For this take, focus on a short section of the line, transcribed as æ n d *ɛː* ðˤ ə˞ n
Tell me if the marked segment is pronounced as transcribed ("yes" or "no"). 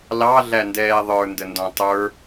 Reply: yes